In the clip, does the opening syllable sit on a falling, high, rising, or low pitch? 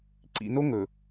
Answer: low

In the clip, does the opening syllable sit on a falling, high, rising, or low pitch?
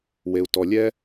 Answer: low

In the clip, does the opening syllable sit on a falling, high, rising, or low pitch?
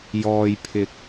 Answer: low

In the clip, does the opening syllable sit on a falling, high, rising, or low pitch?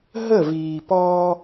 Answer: falling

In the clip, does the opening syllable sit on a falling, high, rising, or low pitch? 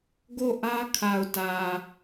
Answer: falling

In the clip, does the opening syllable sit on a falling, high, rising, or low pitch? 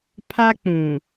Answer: high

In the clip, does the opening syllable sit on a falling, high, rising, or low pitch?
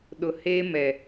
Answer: low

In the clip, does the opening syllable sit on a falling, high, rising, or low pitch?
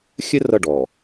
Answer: high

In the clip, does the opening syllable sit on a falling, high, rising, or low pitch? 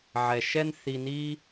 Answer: low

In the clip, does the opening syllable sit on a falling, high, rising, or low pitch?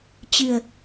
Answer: low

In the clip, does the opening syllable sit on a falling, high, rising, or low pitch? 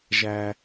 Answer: low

